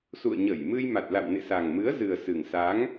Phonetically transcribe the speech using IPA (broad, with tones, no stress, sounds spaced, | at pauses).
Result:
s ṵ˧˨ ə̯ ɲ ə˧˩ j m ɨ˧ j m a˨˩ t̚ l a̰˧˨ w n ḛ˧˨ s a˨˩ ŋ m ɨ˨˦ ə̯ z ɨ˨˩ ə̯ s ɨ˨˩ ŋ s a˨˦ ŋ